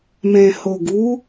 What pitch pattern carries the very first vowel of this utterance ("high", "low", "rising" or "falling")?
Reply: low